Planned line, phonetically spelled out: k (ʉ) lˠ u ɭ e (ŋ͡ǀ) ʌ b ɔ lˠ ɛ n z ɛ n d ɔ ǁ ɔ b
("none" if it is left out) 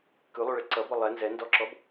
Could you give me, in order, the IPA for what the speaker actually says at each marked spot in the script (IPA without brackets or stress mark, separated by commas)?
ʉ, ǀ